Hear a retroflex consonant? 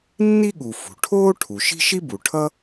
yes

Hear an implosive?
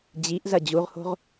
no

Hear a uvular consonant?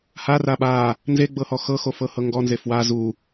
no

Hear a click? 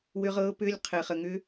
no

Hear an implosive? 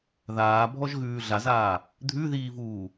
no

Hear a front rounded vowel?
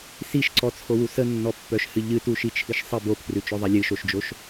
yes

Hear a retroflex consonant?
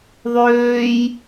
no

